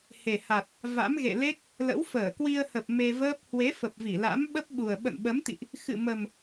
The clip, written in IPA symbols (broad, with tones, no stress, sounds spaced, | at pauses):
h e˨˩ h a˨˩ t̚ | v a̰˧˥ m ɣ ḛ˧˨ l e˦˥ k̚ | l ə̰˧˥ w f əː˧˩ k w i˧ ə̯ h ə˨˩ p̚ m e˧ v əː˦˥ p̚ h w e˨˦ f ə˨˩ p̚ v i˧˩ l a̰˧˥ m ɓ ə˦˥ p̚ ɓ u˨˩ ə̯ ɓ ə̰˧˨ n ɓ ə˨˦ m t̪ ḭ˧˨ ʔ | x ɨ̰˧˨ m ə˨˩ m